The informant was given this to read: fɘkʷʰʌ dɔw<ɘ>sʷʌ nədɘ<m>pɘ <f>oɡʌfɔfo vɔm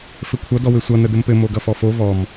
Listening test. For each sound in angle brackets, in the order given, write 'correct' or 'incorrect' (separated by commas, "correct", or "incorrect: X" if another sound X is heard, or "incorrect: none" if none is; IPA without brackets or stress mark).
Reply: correct, correct, incorrect: m